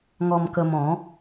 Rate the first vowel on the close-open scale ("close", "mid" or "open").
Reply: mid